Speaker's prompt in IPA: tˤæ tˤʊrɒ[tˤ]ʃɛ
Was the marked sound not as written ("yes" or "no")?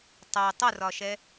yes